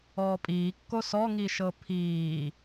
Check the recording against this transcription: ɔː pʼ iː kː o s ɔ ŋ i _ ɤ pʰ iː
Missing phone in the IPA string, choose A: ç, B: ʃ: B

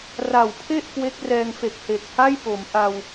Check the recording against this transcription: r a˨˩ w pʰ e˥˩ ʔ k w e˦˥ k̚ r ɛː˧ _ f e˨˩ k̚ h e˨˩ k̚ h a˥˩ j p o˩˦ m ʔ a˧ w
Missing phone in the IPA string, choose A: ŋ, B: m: A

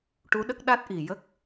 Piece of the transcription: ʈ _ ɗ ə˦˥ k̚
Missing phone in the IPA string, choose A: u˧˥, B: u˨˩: A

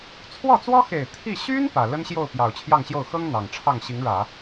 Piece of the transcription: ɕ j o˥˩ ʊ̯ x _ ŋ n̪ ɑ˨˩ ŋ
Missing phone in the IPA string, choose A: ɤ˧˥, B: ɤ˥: B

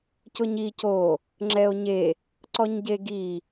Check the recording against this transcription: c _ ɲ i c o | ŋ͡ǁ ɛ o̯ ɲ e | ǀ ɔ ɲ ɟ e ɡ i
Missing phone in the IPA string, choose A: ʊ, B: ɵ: A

